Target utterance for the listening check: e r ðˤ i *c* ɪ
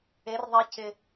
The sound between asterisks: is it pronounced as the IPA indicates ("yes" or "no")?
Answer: yes